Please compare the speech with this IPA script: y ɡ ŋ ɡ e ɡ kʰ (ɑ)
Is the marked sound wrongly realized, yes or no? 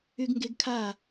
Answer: yes